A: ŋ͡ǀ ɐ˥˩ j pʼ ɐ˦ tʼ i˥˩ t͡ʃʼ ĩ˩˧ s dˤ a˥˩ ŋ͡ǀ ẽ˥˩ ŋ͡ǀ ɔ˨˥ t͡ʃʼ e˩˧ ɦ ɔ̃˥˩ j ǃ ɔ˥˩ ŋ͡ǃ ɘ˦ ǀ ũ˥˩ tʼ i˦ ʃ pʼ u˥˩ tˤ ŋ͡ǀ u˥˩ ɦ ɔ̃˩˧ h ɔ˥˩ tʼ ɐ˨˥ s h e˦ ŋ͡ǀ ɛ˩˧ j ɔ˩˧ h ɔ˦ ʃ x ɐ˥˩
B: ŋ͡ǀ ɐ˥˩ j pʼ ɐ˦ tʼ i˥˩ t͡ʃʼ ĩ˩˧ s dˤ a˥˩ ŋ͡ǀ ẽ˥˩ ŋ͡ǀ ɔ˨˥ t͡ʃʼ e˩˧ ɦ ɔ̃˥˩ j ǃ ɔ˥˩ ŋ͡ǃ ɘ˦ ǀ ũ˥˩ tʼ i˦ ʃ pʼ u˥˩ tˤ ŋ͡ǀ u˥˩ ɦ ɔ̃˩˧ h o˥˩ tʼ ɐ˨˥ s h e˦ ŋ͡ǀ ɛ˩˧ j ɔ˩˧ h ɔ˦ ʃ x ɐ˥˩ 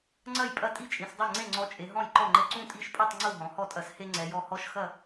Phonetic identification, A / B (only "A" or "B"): A